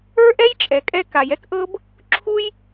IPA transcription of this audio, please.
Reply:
ə˞˦ ʔ ɛ˦ j t͡ʃʼ ɛ˩ kʼ ɛ˦ k a˩ j ɛ˦ k ʔ ɤ˦ b | ǁʰ u˦ j

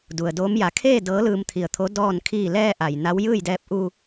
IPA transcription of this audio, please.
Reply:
d u˩ ə̯ d oː˧˥ m j a˧˩ kʰ eː˥˨ d ɤː˧˥ l ɯː˧ m t̪ʰ i˧˩ ə̯ t̪ʰ o˧˥ d ɔː˥˨ n kʰ iː˧˩ l ɛː˧ ʔ a˩ j n a˧˥ w j ɯː˥˨ j d ɛː˧ p̚ ʔ uː˧

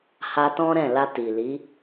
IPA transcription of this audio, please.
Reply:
h a˧ t ɔ̃˦ ɾ ɛ̃˦˨ l a˧ t i˨ l i˨˦

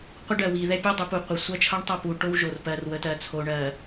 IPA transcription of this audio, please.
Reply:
qʷ ə˦ ɖ ɜ˨ w i˨ ð ɛ˦ pʲ o˦ dˤ ə˨˦ p u˨ qʷ ə˨˦ sʷ ɜ˦ t͡ʃʰ ʌ˦ ɳ tˤ ʌ˦˨ p u˨ ʈ o˦ w ʒ o˨ r p ɜ˨ r w ə˨ t ɜ˨ t͡sʰ o˨ ɳ ɜ˨

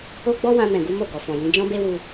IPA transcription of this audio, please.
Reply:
o˦ ɡ͡b ɔ˦ w ã˧ m ɛ̃˨ ɡ u˨˦ m o˦˨ ɡ ɔ˨ f ɔ̃˨ j ĩ˨˦ d͡ʒ ɔ̃˦ b e˦ w u˧

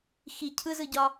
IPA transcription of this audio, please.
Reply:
x i cʰ ɯ z ɯ ɟ ɒ

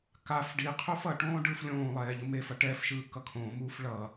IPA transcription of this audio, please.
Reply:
k a f ɖ i qʰ u f ʌ ʈ õː ɖ ɯː f lʲ õː lˠ ɛː ʎ ɯ m e f ʌ ʈ ɛː f ʃ ɯː k ʌ kʰ õː m uː f ɭ ʌ

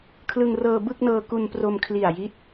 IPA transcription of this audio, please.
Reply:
kʰ l ɯ˧ ŋ r ɤː˧ b ɯ˥˩ k̚ n ɤː˧ k u˧ n p r o˧ m kʰ l i˨˩ a̯ j i˦˥ t̚

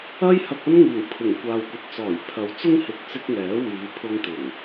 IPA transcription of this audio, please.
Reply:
ɐ˥ j h ɐ˧ k̚ ɐ˥ n ŋ iː˨˩ w pʰ ɪ˨˩ ŋ kʷ aː˨ w kʷ ɐ˨ t̚ t͡s ɔː˨˩ j pʰ ɐ˨ w t͡s ʊ˥ ŋ h ɪ˨ k̚ t͡s ɪ˧ k̚ ŋ ɛː˨˥ w iː˨˧ pʰ ʊ˧ ŋ t̪ ɪ˨˩ ŋ

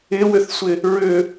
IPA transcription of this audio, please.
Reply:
ɪ w ʏ θ sʷ ɪ | ɹ ʏ

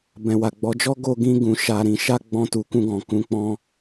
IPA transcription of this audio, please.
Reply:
b ɛ̃˨ w a˨ ɡ͡b ɔ˨˦ d͡ʒ ɔ˦ ɡ o˧ ɡ ĩ˧ ɡ ũ˨ ʃ a˨ ɾ ĩ˨ ʃ a˧ ɡ͡b ɔ̃˧ t u˨ k ũ˧ ɡ ɔ̃˨ k ũ˧ k͡p ɔ̃˦

